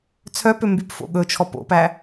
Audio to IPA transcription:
t͡sʰ œ p ø m b y p f o̰ ɠ ɵ t͡ʃʰ ɔ p o̰ p æ

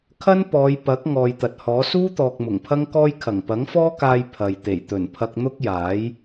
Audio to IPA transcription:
kʰ ɐ˥ n p ɔː˨˧ j p ɐ˨˥ k̚ ŋ ɔː˨ j t̪ ɐ˨ t̚ h ɔː˨˥ s uː˥ t̪ ɔː˨ k̚ m ʊ˨˩ ŋ pʰ ɐ˥ ŋ k ɔː˥ j kʰ ɐ˨˩ ŋ p ɐ˨˥ ŋ f ɔː˥ k aː˧ j pʰ ɐ˨ j t̪ e˨˩ j t̪ ɵ˨˩ n pʰ ɐ˧ k̚ n̪ ʊ˥ k̚ j aː˨˥ j

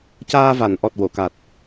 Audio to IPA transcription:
c aː˧ v a˨˩˨ n ʔ ɔ˨˩ t̚ w o˨˩˨ k a˨˩ t̚

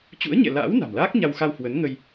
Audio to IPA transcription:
t͡ɕ ṵ˧˥ ə̯ ɲ ɛ̰˧˨ l a̰ː˧˥ w n a̤˨˩ m l aː˦˥ k̚ ɲ a˧ w x a˧ w h w ə˨˦ n ŋ ə˧ j

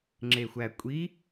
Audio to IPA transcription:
ŋ͡ǁ e xʷ æ kʷʼ i

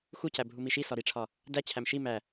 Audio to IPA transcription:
x u c æ bʱ u m i ʃ i s ɒ ɾ i ʈ͡ʂʰ ɒ | d æ t͡ɕʰ æ m ʃ i m æ

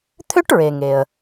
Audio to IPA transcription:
t̪ʰ ø˥ ʈ ɹ e˩ ŋ e˩ ə̯

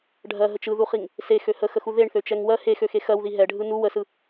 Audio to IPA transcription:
ɖʱ ɜ ɦ ə t͡ʃ ɯ ð u χ i ŋ | s e x ø h ə x ə x u ð e ɳ θ ø t͡ʃ ɛ ŋ w ɜ h e x ø x e x ɜ w ð i ɦ ɛ ɖʱ ɯ n u w ə s ɯ

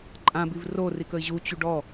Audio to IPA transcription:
ǃʼ ã b i v r o r i k ə i̯ ʑ u t͡ɕ u ɖ ɔ

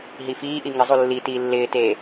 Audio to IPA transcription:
ɦ i f iː ʔ i ŋ ɪ zˤ u lː i t iː lː ɪː t eː

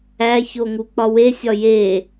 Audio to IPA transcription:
æ ç o ŋ u k͡p ɒ w e sʲ ɒ j e

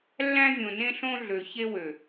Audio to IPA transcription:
lː æ̃˦ vʲ õ˨ n ẽ˦ ɬ õ˦ ɮ ø˨ ç e˦ w ø˨

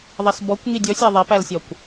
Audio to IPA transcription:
ðˤ ɛ s b ɔ kʷ ŋ i dʲ ɔ sʲ æ ðˤ ɛ p æ l sʲ ɒ kʷ

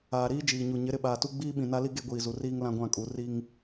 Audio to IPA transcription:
aː˨ ɾ iː˦ d͡ʒ iː˨ ɲ u˨ ɲ ɪ˨˦ ɾ ɪ˨ ɓ aː˨ t u˦ ɡ͡b iː˦ ɓ ĩ˨ n a˦ l i˦ ɡ e˦ ɡʷ iː˨ z u˨ r iː˦ ŋ l ã˦ ɡʷ ã˦˨ kʼ u˨˦ r i˦ ŋ

